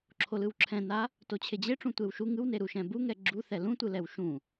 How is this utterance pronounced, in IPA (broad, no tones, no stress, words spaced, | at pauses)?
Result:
ǁʰolɯwǁʰɛ̃na | tot͡ɕʰed͡ʑeʈ͡ʂũ tʷewʃu ŋɯwneɾu ʃɛ̃buŋɛ ɡ͡ǁuθɛ lũtʷɯ lɛwʃũ